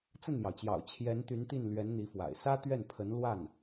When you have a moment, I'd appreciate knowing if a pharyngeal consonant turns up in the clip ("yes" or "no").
no